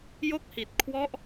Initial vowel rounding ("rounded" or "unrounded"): rounded